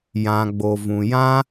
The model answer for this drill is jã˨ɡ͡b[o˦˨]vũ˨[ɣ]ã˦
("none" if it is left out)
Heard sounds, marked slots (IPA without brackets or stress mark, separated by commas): o˨, j